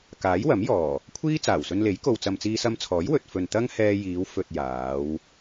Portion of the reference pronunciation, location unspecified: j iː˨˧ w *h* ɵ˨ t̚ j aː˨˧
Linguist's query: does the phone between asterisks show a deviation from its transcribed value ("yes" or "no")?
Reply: yes